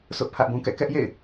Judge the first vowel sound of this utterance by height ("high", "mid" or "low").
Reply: high